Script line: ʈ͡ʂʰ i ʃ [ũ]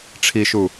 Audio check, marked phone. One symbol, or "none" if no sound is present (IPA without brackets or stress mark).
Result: u